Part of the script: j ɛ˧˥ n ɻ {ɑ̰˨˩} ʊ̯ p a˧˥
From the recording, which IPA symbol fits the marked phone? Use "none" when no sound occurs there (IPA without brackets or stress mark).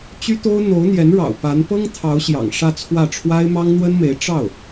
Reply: ɑ̰˨˩